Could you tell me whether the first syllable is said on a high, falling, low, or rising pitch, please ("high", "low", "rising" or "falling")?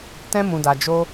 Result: high